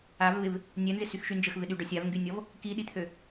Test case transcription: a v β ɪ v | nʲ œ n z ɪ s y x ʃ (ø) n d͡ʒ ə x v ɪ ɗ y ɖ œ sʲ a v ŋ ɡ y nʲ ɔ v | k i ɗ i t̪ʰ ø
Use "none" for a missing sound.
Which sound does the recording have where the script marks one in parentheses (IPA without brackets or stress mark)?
y